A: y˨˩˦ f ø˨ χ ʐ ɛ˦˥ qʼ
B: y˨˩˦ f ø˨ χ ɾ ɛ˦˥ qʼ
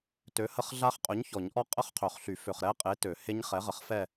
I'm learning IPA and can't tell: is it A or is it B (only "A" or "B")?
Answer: B